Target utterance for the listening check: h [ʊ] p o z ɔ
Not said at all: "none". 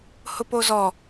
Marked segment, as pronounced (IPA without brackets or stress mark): ʊ